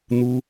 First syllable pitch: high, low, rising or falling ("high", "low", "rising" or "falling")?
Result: high